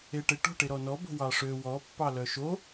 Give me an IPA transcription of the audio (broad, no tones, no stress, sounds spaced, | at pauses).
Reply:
e ʈ e ʈ o̤ ʈ e ɾ ɔ n ɔ b o̤ w ɑ ʂ ø w ɔ pː ɑ l œ ʃ o